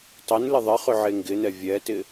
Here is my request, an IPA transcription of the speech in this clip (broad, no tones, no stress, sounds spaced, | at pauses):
tˤ ɪ n l ɪ ðˤ ɪ χ ʏ ʕ e ŋ ɡ ɪ n ɛ vʲ ɛ t ɪ